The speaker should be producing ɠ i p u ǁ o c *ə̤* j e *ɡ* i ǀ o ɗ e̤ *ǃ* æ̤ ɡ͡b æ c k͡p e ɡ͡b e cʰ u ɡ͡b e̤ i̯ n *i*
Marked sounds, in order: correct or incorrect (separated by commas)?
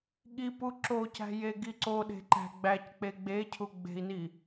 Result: incorrect, correct, correct, correct